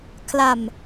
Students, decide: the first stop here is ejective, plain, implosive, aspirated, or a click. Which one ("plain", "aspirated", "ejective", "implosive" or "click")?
aspirated